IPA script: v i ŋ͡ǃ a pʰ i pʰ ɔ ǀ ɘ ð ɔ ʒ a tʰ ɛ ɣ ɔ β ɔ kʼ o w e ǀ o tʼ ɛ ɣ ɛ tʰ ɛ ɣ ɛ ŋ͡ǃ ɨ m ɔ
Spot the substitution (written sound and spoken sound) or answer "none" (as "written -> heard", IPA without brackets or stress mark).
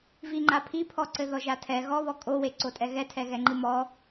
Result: none